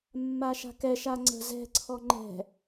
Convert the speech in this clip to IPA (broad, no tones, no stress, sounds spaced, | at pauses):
mː a ʃ a̤ k ɛ ʃ a ŋ͡ǀ ə̤ z ɛ̤ ǀʰ ɔ ŋ͡ǃ ɛ̤